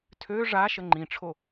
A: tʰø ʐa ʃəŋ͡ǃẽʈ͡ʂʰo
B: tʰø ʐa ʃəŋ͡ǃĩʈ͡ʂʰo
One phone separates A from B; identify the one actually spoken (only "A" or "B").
B